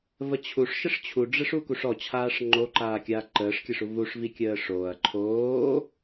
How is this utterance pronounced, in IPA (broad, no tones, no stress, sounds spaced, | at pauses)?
v ə t͡ɕʰ u ʂ ʃ ə ʂ t͡ɕʰ u ɖ͡ʐ ɘ ʂ u k u ʂ ɔ t͡ɕʰ aː ʂ ŋ͡ǃ o ǃ aː kʲ aː ǃ əː ʂ kʲ ɘ ʂ u v u ʂ v i kʲ əː ʂ oː ɐ̯ ǃʰ oː